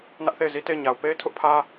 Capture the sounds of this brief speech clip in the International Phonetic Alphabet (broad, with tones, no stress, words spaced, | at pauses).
nä˦ʔθe˦˨ɪ̯zi˦ te˦˨ɪ̯ɲa˨ʊ̯ pe˦ɪ̯tʰʊ˦ʔpʰä˦